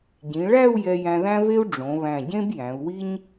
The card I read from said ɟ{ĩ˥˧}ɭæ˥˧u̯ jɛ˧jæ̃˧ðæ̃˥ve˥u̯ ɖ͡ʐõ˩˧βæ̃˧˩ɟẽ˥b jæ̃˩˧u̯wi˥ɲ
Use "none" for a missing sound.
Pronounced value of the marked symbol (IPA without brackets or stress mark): ĩ˩˧